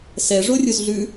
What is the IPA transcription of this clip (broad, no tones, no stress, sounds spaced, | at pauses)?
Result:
s ɛ ʐ o rʲ u z ɮ ʉ